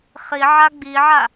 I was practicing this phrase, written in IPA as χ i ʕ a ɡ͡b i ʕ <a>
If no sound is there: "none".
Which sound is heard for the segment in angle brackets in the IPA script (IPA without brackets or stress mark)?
a